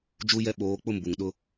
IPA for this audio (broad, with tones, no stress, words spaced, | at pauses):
d͡ʒu˦jɛ˦ɓoː˨˦ k͡pʊ˦˨m bu˨ŋɗʊ˦